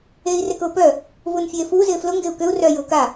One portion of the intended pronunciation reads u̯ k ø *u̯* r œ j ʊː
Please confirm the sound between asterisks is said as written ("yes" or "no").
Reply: yes